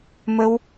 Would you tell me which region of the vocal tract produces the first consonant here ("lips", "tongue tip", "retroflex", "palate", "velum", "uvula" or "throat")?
lips